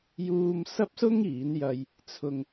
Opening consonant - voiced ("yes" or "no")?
yes